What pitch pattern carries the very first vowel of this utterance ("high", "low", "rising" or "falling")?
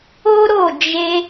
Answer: high